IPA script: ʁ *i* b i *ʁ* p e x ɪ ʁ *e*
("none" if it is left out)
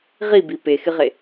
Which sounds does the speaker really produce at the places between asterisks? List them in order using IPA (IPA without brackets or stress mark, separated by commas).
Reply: i, none, e